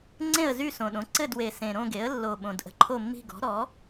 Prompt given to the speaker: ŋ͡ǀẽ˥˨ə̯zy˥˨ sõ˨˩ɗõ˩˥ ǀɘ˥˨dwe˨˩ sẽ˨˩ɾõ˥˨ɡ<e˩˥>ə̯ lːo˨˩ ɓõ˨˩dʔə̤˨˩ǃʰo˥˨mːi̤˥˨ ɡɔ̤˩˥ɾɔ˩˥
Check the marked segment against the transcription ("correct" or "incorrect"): correct